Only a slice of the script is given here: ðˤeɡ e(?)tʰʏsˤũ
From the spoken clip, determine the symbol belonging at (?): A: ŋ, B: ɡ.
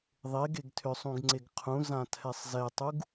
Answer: B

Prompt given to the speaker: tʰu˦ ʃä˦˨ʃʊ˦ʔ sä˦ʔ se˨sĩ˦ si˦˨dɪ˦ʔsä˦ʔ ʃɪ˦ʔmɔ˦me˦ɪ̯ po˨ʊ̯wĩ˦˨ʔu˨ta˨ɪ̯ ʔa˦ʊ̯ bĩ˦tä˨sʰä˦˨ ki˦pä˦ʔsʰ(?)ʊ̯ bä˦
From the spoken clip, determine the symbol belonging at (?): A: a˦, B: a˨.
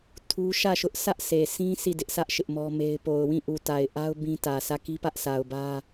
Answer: B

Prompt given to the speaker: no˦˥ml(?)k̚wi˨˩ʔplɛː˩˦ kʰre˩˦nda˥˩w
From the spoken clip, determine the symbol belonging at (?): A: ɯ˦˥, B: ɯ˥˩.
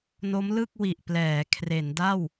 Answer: B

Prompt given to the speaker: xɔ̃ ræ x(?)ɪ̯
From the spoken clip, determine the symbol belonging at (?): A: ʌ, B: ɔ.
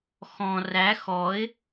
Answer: B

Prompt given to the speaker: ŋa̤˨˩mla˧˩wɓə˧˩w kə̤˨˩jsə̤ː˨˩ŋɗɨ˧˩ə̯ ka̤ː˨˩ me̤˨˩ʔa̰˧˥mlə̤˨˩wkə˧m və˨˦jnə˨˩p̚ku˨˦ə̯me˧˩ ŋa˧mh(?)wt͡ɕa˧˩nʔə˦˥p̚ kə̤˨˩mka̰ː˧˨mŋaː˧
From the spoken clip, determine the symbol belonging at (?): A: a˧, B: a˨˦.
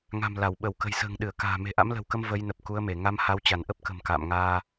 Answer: B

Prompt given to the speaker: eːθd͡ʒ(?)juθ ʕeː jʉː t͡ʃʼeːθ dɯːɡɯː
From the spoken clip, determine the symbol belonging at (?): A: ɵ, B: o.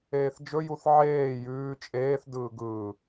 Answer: A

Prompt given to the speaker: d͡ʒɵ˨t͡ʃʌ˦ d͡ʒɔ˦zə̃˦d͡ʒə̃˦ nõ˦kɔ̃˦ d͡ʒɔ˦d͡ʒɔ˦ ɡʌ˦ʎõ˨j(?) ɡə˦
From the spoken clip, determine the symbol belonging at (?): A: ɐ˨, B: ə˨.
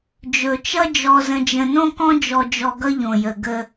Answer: B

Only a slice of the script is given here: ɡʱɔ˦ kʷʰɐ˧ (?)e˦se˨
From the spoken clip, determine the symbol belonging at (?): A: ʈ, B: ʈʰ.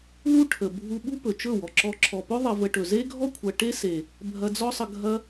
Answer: A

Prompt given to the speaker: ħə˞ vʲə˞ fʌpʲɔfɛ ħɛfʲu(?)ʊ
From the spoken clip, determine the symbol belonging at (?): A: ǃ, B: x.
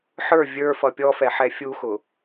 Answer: B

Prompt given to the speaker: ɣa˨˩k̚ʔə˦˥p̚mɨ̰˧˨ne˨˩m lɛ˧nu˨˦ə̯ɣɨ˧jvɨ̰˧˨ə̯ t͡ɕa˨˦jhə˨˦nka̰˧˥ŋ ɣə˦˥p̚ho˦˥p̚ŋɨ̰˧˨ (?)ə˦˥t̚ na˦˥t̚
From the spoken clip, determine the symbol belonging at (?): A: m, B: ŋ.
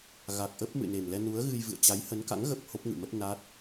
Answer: A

